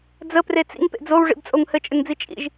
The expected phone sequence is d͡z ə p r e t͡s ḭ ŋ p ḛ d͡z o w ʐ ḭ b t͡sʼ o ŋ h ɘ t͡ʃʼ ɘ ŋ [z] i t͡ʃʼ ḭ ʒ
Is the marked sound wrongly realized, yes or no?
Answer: yes